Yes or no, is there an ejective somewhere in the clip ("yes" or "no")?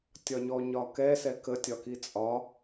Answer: yes